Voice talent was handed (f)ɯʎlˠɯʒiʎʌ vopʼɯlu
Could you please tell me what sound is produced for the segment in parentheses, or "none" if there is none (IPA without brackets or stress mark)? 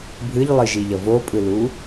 bʱ